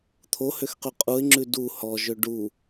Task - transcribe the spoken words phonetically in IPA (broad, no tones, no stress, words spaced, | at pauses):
t̪ʰohøxqy qʼuɪ̯ŋ͡ǁʉ du hɔʒø ɖu